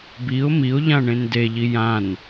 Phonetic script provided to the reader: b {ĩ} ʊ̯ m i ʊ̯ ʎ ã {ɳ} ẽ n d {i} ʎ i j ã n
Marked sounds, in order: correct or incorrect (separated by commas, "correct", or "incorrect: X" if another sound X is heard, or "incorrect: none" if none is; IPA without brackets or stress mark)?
incorrect: i, correct, incorrect: e